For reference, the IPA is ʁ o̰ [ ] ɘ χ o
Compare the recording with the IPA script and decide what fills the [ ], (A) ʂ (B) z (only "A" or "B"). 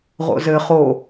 B